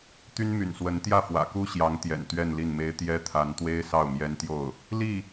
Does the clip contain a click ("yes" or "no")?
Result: no